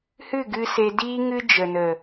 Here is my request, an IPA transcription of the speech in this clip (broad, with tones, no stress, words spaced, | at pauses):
hɨ˦˨ɡɨ˧ se˧diː˦ ŋɨ˦ d͡ʒə˨nə˨